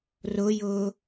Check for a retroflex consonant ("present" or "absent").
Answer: absent